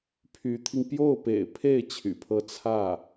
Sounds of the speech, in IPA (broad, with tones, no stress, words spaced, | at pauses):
pʰy˧˥t̪ʰi˧ŋ pjo˥˩ʊ̯pḛ˨˩ɪ̯pʰe˥˩ɪ̯ t͡ɕʰy̰˨˩pʰɤ˥ t͡sʰä˥˩